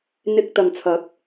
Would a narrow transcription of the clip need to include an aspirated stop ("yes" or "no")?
yes